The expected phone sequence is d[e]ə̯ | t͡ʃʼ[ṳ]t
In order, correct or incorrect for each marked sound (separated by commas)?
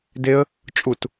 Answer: correct, incorrect